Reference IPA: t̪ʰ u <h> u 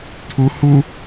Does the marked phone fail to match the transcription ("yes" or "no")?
no